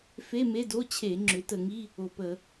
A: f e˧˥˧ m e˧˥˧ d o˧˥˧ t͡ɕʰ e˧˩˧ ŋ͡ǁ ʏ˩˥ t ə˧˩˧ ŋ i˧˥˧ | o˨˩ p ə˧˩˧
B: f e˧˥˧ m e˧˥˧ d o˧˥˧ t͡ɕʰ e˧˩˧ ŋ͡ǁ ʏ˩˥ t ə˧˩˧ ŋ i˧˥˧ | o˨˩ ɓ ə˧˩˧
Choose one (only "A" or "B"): A